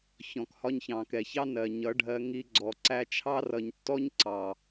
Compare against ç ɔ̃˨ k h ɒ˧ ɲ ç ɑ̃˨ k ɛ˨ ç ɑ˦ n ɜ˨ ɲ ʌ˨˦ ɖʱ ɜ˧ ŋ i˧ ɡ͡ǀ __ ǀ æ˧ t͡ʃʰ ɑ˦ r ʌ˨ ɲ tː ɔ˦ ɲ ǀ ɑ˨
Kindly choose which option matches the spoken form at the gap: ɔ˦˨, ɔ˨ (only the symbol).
ɔ˨